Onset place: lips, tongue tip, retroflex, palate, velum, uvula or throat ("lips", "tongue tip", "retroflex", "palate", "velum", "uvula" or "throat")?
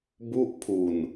lips